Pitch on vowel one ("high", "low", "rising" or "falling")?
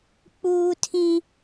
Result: high